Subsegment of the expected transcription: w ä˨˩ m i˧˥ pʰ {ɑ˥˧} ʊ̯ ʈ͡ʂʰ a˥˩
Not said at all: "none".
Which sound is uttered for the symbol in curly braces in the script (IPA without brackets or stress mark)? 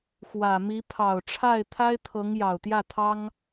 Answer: ɑ˨˩